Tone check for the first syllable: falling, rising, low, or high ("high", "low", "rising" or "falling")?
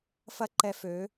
high